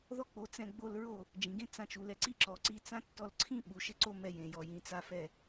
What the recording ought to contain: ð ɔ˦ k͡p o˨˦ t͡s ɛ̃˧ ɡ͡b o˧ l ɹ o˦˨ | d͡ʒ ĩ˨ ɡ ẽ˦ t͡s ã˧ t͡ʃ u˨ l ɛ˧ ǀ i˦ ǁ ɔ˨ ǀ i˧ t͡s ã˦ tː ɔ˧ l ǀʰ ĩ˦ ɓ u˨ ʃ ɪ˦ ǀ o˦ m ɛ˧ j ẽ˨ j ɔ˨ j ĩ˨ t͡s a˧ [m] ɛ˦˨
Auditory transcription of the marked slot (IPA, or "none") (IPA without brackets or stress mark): f